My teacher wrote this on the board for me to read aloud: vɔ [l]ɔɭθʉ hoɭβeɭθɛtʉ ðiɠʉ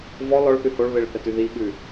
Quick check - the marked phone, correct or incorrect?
correct